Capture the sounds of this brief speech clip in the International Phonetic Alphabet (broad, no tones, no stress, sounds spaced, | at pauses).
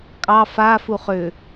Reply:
kʼ ɑ f a f u χ ʏ